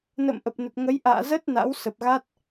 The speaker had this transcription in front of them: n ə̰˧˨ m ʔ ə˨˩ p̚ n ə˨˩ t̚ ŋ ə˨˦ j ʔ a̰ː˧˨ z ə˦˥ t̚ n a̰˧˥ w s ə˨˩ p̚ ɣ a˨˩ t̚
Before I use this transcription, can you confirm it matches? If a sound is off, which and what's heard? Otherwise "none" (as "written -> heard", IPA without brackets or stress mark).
a˨˩ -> a˦˥